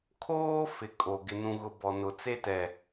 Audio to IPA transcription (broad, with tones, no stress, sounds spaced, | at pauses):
kʰ oː˦ f ɪ˨ kʼ o˨ ɡ ɪ˨ n ũ˨ ɣ ʊ˨ b ɔ˨ n ʊ˨ t͡s e˦ t ɛ˨